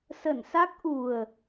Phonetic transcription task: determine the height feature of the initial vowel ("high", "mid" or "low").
mid